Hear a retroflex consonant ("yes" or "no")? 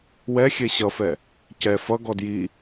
no